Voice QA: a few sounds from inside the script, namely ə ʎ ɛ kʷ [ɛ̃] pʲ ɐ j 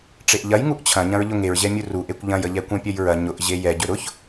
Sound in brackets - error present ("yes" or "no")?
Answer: no